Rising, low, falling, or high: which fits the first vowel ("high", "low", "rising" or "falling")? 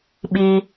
high